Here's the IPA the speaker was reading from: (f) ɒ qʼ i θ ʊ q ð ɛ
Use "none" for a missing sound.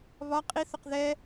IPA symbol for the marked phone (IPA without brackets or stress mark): β